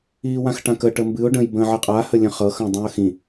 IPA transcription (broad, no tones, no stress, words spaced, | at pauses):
iːwãxʈãkə ʈəmbɨʊ̯ ɖə̃j bə̃ːʕɨqʼa həlʲə̃χɤ xə̃ːdˤũə̯xĩ